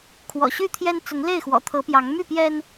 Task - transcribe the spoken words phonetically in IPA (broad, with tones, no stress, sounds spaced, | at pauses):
kʰ w ɔ̰˨˩ ɕ y˥˨ t̪ʰ j ɛ˦ n t͡s ʊ˨˦ ŋ l e˥˨ ɪ̯ x w ɔ̰˨˩ t̪ʰ ɤ˨˦ p j ɑ˨˦ ŋ m y˥˨ p j ɛ˦ n